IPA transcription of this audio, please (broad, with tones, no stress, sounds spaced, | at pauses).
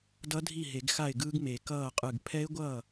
d ʌ˦˥ dʱ i˥˩ ɦ e˨˩˦ ɡ x a˥˩ ɪ̯ ɡ ɯː˦˥ ɡ m e˨˩˦ k ʌː˥˩ qʼ ɯ˧˩ ɡ pʰ ɛ˦˥ ɪ̯ ɡʷ ʌː˥˩